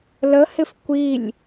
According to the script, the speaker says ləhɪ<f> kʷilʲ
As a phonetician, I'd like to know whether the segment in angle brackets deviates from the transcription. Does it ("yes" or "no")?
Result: no